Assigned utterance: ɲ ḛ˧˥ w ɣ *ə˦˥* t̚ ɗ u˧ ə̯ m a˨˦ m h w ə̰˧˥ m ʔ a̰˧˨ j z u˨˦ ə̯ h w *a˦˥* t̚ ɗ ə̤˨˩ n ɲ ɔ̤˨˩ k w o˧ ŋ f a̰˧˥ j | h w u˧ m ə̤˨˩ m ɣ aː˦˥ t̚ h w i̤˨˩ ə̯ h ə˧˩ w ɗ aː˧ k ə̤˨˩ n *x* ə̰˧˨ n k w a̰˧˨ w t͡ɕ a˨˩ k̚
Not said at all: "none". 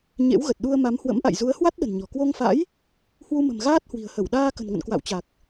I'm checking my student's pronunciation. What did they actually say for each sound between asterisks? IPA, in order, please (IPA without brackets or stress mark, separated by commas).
ə˨˩, a˦˥, ŋ